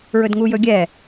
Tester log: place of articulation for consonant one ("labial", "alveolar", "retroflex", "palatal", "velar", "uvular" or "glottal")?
alveolar